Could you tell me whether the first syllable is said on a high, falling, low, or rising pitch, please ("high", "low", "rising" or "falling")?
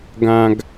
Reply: high